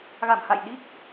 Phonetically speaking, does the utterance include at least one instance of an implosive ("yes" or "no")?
yes